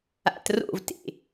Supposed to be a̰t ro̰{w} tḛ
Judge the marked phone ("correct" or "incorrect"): incorrect